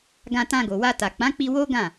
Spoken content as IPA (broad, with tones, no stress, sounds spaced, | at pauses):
ɡ ã˧ t ã˧ ɡ o˨ w a˧ t a˨ k͡p ã˨˦ k͡p i˧ w o˦ ɡ ã˦˨